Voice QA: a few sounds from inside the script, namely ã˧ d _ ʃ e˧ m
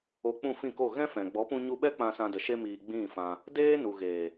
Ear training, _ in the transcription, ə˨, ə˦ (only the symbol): ə˨